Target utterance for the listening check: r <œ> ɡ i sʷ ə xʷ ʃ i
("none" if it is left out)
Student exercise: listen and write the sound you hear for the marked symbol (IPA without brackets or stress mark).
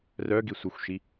œ